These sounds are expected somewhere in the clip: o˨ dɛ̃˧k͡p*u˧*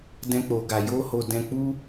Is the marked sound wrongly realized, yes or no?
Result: yes